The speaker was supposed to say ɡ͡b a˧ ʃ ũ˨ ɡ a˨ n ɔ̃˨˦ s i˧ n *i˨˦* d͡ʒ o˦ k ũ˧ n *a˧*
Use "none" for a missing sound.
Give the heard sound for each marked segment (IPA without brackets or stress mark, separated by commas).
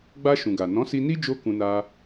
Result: i˦, a˧